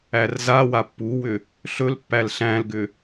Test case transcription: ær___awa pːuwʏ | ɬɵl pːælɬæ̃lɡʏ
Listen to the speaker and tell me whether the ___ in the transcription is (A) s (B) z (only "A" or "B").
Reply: B